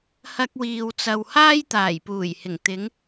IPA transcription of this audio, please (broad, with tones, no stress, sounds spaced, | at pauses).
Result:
h ɐ˧ k̚ w iː˨ w t͡s ɐ˨ w h aː˥ j t̪ aː˨˩ j p uː˨˩ j h ɪ˨˩ ŋ t̪ ɪ˨˧ ŋ